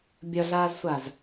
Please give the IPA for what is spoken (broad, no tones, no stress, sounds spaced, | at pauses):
bʲ ʌ ɮ aː z sʷ a z